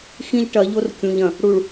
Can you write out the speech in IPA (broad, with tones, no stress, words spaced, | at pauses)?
xĩ˦ʎʈɐ˨˦ʎo˦r kʲũ˨ʎɐ̃˨ | ɽu˨ɭ